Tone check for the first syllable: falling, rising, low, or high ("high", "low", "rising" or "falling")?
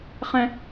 high